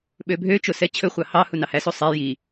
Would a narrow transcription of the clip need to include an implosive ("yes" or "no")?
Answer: yes